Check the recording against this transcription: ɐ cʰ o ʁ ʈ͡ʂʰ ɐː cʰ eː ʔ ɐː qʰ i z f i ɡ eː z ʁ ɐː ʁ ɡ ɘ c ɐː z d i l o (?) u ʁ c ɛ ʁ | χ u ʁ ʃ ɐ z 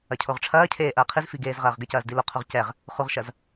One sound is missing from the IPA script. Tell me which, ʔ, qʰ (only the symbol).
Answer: qʰ